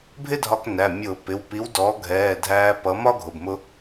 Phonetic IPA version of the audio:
bʱ ɪ˥ dʱ ɒ˧ k n æ˩˧˩ mʲ ʊː˧˩˧ p ɪ˩˧˩ w p i˨˥ w d ɔ˨˥ ɡʱ ɛː˩˧˩ dʱ æː˧ p ʌ˨˥ m ɒ˥ ɡʱ ʊ˩˧˩ b m ʊ˧

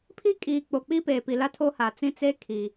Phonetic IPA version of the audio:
pʰ i˦ kʼ iː˨ k͡p o˨ k͡p i˦ p eː˨ p i˨ l a˦ tʰ o˦ h a˨ t͡s ĩ˦ t͡s e˦ kʰ i˨

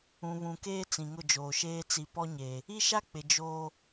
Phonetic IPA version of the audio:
ũ˨ β ũ˨ k eː˦ t͡s ĩ˨ ŋ ʊ˦˨ d͡ʒ oː˨ ʃ eː˦ t͡s i˨ p ɔ˦ ɲ e˨ | i˦ ʃ a˦ k͡p ɪ˨ d͡ʒ o˦

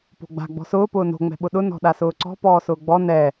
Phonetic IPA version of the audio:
p o̤ ɡ͡b a̤ ɡ͡b ɔ̤ s ʊː p ʊː n o̤ ŋ͡m ɛ̤ ɓ ʊ ɗ ʊ n ɔ̤ ɗ a s ʊː ǀ ɔ̤ p ɔː s ʊː ɡ͡b ɔ n ɛ

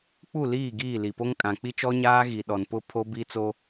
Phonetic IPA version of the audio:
k͡p u˦˨ l iː˦˨ ɡ iː˦˨ l i˨ p o˦ ŋ kʼ ã˨ k͡p i˦ t͡ʃ ɔ˦ ɲ aː˦ ɣ i˨ ɗ ɔ˨ n p ʊ˦ pʰ o˦ b i˦ t͡s o˦

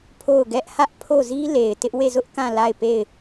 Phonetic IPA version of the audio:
pʰ o˦˨ ʊ̯ ɡ ɛ˦ ʔ h ä˦ ʔ pʰ o˦˨ z i˦ l e˨ ɪ̯ t ɪ˦ ʔ w e˦˨ z ʊ˦ ʔ k ã˦˨ l a˦˨ ɪ̯ p e˦˨ ɪ̯

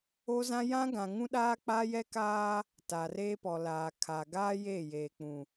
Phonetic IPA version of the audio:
o˦ z ã˦ j ã˦ ɡ ã˨ ŋ ũ˦ ɗ aː˦ k͡p a˦ j ɛ˦ k aː˦ | t a˨ r eː˦ p ɔ˨ l aː˨ kʰ a˨ ɡ aː˦ j eː˦˨ j eː˨ k͡p ũ˨

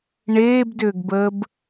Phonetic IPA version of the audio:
ɳ eː b d ʏː ɡ b əː b

